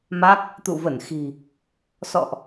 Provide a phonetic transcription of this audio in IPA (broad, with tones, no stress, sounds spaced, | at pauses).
m a˦˥ k̚ | t̪ ṵ˧˨ v ə˧˩ n x i̤˨˩ | s ɔ̰˧˨ ʔ